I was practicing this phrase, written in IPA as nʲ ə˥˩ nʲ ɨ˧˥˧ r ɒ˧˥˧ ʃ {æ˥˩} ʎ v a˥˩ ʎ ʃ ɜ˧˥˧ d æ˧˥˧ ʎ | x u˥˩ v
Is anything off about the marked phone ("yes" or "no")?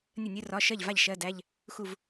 yes